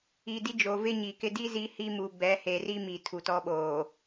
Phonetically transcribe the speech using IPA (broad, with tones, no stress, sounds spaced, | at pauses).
i˨ d i˦ d͡ʒ o˨ v ɪ˦ ɲ i˨ k ɪ˦ d i˦ z i˨˦ h i˦ m u˨ b ɛ˨˦ h e˨ r i˦ m i˨ tʰ u˨ t ɔ˦ ɓ oː˨